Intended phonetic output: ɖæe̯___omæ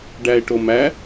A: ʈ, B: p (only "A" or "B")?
A